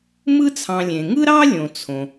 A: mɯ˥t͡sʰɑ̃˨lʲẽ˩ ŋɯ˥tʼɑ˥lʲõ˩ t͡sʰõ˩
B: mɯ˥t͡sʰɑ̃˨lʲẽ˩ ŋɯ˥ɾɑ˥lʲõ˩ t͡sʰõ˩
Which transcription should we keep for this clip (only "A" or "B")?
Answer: B